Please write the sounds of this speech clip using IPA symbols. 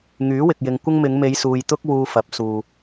ŋyː˨˥wɪ˨k̚jɪ˨ŋ kʷɪ˥ŋ mɪ˨˧ŋme˨˧jsuː˨j t̪ʊ˧k̚wuː˨ fɐ˨˥p̚suː˨

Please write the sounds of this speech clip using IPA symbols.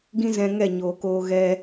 ɡĩ˦ zɛ̃˧ŋɛ˦˨ɲoː˨koː˧ ɣɛ˧

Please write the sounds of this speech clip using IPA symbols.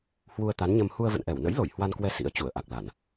hwu˧ə̯t̪a˨˦nɲə˧m hu˧ə̯və̰˧˨nʔɛ˧˩w nə̰˧˥jlo˧˩j hwa˧nkwɛ˧ sḭ˧˥ə̯ t͡ɕu˧˩ə̯ʔa˨˩k̚la˧˩˨n

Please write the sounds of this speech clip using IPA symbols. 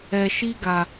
ɛ˨ʃi˦ɡa˨

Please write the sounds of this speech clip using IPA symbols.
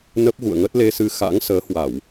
nə˦˥p̚ɣṵ˧˨ə̯ŋə˦˥t̚ le˧sɨ˧ xa̰˧˥ŋsəː˨˦ hwa˧˩˨w

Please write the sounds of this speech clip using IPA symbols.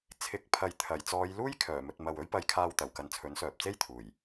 t͡sʰɪ˨˥k̚pʰɐ˨j t̪ʰɐ˨˩jt͡sɔː˨˧jluː˥j kʰœː˨˩mɵ˨t̚mɐ˨w ɵ˥ɥpɐ˧jkʰaː˧wt̪ɐ˨˩w kɐ˨˧nt͡sʰɵ˨˥nsœː˨p̚t͡se˥j t̪ʰuː˨˩j

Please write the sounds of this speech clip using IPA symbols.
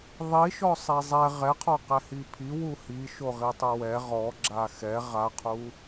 ðˤiʃɔsˤe zˤɛ ʁɛqʰɔqɛ hipʰi wuhi ʃoʁitˤuwɛ ʁɔɡ͡ǁa xɛ ʁaqʰu

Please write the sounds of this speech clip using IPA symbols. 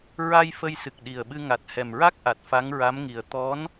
ɹa˧j fə˧j sɨ˨˩k̚ɗi˨˩ə̯ɓɨ˧ŋa˨˩t̚ hɛ˨˩mɹa˦˥k̚ʔa˨˩t̚ fa˧˥ŋɹa˧˥mŋi˨˩ə̯ t̪ɔ˧˥n

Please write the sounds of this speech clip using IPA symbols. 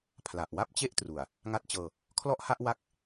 pʰla˨˩ʔwa˥˩p̚t͡ɕe˥˩ʔtru˨˩a̯ | ŋa˦˥t̚t͡ɕɤː˧ | kʰlɔ˥˩ʔha˥˩ʔ wa˥˩k̚

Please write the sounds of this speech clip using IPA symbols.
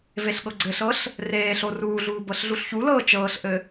veɬɠɤɡ͡ǀɘɬɤɬ | reːɬo ruːɮuː bɤɬɮuɬçulɤː t͡ʃɤːɬʔɘ

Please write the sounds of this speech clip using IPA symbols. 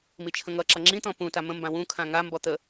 mit͡ʃʰə̃ŋʌǁʌ ŋ͡ǁĩt̪ɔ̃ pũta mə̃mbã wũ kʰãŋa mbɔt̪ə

